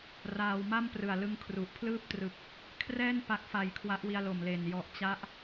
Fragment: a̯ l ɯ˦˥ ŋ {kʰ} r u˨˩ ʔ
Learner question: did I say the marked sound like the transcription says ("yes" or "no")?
yes